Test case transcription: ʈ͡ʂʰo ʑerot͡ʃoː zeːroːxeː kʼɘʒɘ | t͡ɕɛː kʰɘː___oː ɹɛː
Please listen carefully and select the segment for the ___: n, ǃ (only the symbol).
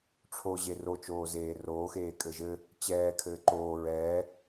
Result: ǃ